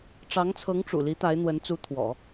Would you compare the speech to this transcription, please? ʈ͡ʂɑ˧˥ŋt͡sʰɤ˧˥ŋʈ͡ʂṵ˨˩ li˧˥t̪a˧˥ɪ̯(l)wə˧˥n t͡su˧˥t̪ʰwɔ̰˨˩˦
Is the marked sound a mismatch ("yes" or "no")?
yes